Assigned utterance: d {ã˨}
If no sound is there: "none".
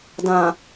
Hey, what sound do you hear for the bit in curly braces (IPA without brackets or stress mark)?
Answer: ã˨